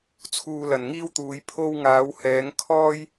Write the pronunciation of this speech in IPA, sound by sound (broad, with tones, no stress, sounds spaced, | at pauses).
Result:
t͡sʰ uː˧ l ɐ˨ n ŋ iː˥ w t̪ uː˨˧ j pʰ o˧ w ŋ aː˨˧ w h ɛː˨˧ ŋ kʰ ɔː˥ j